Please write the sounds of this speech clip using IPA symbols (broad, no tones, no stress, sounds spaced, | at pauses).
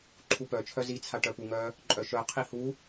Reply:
ǃʰ u p œ t͡ʃʰ œ z i t͡sʰ a ʈ œ p u ŋ œ | ǃʼ œ ʃ œ qʰ i h u